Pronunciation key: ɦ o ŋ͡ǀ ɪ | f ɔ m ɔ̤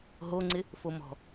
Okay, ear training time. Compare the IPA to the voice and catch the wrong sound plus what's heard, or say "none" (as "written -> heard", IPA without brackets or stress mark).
ɔ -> o